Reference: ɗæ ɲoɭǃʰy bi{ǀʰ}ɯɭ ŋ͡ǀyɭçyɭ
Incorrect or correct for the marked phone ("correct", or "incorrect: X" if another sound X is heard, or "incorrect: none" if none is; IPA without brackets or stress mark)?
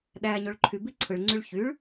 correct